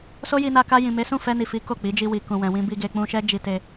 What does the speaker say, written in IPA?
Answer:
s o˦ j i˧ n a˧ k a˧ j ĩ˨ m e˨˦ s ũ˦˨ f ɛ˧ n i˨ f i˨˦ k o˦˨ k͡p i˨˦ d͡ʒ i˧ w i˨ k ũ˨ w ɛ̃˨ w ĩ˧ b i˧ ɡ e˨ k͡p ũ˧ ʃ ɛ˦ d͡ʒ i˧ t e˧

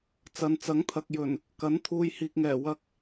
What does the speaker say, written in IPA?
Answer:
t͡s ɐ˨˧ n t͡s ɐ˨˥ ŋ t̪ʰ ɐ˨ k̚ j ɵ˨˩ n | k ɐ˨˥ n t̪ʰ uː˨ j h iː˨ k̚ ŋ ɛː˨˩ w ɐ˧ k̚

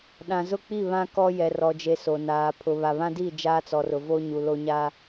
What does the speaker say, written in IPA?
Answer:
ɗ ã˨ z ʊ˦˨ k͡p i˦˨ β ã˦ k ɔ˦ j ɛ˨ r ɔ˨ d͡ʒ e˨ s o˨ n aː˨ pʰ ʊ˨ β a˨ β ã˦ d i˦˨ d͡ʒ aː˦ t͡s ɔ˨ r ʊ˨ v o˦ ɲ u˨ l o˦ ɲ aː˦

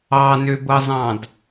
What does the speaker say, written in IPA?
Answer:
ɑ n ø b ɤ zˤ ɑ̃ d

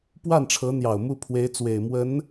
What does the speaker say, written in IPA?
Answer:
p w a˥˩ n ʈ͡ʂʰ ɤ˧˥ n̪ j ɑ˨˩ ʊ̯ m u˥˩ pʰ w e˧˥ ɪ̯ t͡s w e˨˩ ɪ̯ m w ə˧˥ n

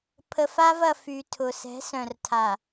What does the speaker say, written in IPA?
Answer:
pʰ ə˨ f a˦ v ɐ˨ f y˨ tʰ ʊ˨ s ɛ̤˨˦ s œ̃˨ r tʰ a˨

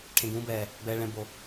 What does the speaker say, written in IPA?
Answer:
ʈʰ ẽ˨ ɡ ũː˨˦ b ɛː˨ | b ɛː˨ ɭ ɛ̃˨ b o˨

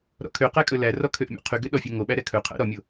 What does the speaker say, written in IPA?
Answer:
ɾ ɔ̰ kʰ ø q æ kʼ ɵ l æ r ɔ kʰ ø ʔ mʲ ɔ̰ qʰ y ɡ ø ɗ ɔ fʲ ø ŋ o ɓ æ ɾ ɛ kʰ ɵ qʰ æ̰ ɾ ɔ mʲ o

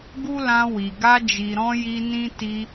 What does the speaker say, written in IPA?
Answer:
ɡ u˦ l ã˧ w i˨ ɡ a˧ d͡ʒ i˨ ɾ ɔ̃˧ j i˧ n ĩ˦ t i˧

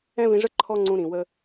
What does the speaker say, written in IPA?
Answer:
ɛ̃˦ v ĩ˧ ʐ ə˦ ǃʰ ɔ˦ ŋ͡ǀ ũ˧ ɾ ĩ˨ w ə˦

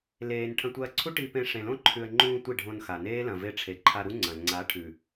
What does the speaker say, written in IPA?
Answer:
l eː˧ n ʈʰ ɐ̃˧ tʷ ɐː˧ ǀʰ u˦ ʈ i˧ p ẽ˧ ʂ ẽ˨ l õ˦ ǃʰ ʉ˨ ə̯ ŋ͡ǃ ũː˧ tʷ i˦˨ ɖʱ õ˧ n x a˨ n eː˦ l ɐ̃˨ v e˧ ʈ͡ʂʰ e˨ ǃʰ a˧ ɾ u˦ ŋ͡ǀ ɐ̃˨ ŋ͡ǀ a˨˦ ʈʰ ʉ˨

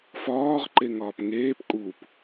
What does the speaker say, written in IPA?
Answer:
f ɒː ʁ ǃ e ŋ ɒː p ŋ eː p kʼ u p

